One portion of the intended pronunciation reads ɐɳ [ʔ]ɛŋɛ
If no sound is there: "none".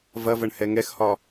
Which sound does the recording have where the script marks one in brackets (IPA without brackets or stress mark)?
h